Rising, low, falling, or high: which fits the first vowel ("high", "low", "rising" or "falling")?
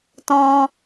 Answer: high